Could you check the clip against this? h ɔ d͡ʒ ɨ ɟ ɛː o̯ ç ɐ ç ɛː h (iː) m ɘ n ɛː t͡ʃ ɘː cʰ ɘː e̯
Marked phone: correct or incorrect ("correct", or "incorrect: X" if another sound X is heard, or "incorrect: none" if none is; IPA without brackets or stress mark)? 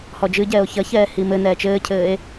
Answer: incorrect: i